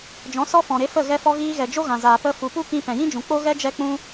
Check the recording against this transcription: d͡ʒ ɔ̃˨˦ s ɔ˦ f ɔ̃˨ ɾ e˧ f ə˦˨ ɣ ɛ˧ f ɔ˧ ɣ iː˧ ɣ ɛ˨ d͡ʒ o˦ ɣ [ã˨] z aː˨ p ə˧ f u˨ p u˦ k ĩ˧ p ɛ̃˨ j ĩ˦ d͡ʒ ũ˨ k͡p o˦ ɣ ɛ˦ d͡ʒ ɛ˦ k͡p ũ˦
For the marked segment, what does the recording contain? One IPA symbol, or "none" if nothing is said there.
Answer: ã˨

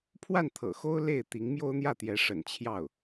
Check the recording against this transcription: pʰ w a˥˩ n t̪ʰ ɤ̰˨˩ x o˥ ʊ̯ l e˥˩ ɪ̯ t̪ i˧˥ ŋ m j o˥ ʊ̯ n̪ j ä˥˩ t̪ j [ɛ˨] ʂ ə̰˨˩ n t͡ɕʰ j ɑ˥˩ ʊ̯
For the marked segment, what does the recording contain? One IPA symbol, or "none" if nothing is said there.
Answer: ɛ˧˥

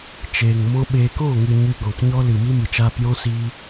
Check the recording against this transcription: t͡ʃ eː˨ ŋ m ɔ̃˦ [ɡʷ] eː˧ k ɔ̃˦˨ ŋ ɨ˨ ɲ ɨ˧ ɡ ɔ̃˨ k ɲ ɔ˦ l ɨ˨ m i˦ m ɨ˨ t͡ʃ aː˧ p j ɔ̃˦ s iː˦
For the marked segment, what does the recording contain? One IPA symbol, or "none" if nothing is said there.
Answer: ɓ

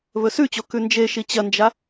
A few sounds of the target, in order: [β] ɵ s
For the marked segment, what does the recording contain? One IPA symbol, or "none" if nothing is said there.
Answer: β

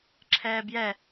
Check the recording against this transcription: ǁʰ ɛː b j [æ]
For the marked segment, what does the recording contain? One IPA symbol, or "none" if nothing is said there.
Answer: ɛ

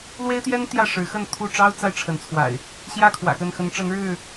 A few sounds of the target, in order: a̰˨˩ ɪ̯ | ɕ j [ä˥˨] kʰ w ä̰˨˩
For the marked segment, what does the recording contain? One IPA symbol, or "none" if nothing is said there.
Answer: ä˥˨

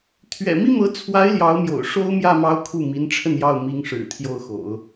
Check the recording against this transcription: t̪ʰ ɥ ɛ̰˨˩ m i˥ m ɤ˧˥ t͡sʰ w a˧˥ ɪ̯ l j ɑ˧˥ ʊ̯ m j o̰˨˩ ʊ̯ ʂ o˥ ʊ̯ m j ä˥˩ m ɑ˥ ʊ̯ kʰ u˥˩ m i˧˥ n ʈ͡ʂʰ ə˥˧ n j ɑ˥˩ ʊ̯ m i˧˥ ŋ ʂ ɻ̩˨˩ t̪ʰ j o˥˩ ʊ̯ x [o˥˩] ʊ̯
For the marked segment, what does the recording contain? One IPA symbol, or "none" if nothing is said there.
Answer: o̰˨˩˦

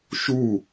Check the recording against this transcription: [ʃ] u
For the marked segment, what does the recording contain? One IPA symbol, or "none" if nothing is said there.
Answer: ʃ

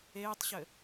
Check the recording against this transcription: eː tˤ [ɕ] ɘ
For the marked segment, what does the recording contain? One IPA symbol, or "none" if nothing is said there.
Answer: ɕ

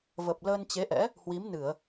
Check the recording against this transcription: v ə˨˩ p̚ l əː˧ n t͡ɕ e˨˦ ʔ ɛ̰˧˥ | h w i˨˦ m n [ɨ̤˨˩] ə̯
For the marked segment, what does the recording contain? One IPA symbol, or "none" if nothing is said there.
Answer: ɨ˧˩˨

